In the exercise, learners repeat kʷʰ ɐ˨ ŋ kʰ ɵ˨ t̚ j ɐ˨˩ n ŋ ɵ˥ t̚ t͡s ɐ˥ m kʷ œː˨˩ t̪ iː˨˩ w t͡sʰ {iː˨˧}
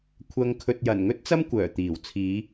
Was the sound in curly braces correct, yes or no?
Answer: yes